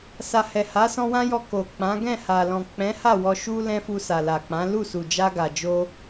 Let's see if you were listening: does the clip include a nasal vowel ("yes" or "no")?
yes